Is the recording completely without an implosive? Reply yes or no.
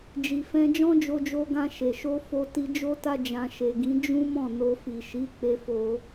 yes